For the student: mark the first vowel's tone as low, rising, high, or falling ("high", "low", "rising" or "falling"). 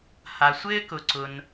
low